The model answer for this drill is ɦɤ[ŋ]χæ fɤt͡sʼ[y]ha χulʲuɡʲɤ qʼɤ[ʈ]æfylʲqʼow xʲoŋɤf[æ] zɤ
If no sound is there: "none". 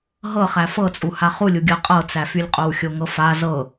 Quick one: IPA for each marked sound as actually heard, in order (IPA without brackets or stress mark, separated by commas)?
none, u, t͡s, a